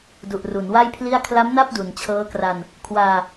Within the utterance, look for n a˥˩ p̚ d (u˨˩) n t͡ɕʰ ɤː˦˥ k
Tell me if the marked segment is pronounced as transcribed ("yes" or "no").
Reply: yes